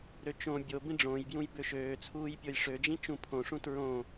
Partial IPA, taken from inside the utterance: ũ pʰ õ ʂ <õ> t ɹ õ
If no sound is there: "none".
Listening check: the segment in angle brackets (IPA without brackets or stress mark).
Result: ũ